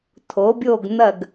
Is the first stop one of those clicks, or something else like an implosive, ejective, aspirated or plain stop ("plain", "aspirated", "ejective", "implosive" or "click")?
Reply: aspirated